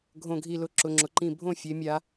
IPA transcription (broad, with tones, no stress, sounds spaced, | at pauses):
ɡʱ õ˧ ɡʱ i˧ l ʊ˧ ǁ ʊ˧ ŋ͡ǁ ʊ˧ ǃ ĩ˥˨ bʱ õ˥˨ fʲ e˧ mʲ a˧